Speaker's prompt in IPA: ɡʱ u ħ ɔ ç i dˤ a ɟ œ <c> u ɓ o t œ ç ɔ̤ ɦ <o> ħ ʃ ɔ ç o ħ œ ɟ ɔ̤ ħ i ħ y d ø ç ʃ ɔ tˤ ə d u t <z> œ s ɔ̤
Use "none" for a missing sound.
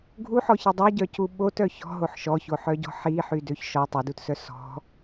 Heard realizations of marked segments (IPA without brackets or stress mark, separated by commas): c, o, s